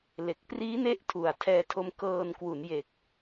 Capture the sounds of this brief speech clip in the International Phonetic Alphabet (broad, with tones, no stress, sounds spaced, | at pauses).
l e˨˩ k̚ p r iː˦˥ n e˦˥ ʔ tʰ u˨˩ a̯ tʰ ɛː˧ tʰ o˧ m k ɤː˧ n k w u˩˦ n j e˨˩ k̚